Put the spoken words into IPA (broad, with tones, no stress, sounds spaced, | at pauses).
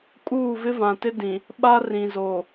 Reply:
kʼ uː˦˨ v ɪ˦ v ã˨ t ɪ˦ d ĩ˨ | ɓ a˦ r ĩ˨ z o˨